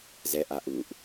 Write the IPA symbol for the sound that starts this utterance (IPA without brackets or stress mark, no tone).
z